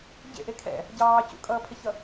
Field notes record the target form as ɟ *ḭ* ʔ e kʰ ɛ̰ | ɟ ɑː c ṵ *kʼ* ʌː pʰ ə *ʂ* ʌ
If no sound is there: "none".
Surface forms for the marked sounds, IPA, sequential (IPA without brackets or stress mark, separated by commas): ḛ, kʼ, ç